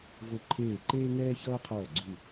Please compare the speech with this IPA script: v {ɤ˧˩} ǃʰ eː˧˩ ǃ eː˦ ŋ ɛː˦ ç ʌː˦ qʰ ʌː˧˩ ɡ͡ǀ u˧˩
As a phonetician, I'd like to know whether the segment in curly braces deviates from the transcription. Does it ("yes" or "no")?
yes